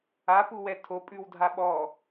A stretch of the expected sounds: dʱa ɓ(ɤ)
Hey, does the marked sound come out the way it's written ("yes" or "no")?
no